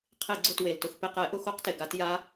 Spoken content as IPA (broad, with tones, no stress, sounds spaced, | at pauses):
qʰ e˧˩˧ ɡ͡ǀ ʊ˧˩ t w e˩ l t ʊ˧˩ x p e˧˩ q ɛ˧˩˧ ʔ ʊ˧˩˧ x o˧˩˧ q t e˩ ɡ a˧˩˧ t j a˧˥